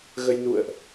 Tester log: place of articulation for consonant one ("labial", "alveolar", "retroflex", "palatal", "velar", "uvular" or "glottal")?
velar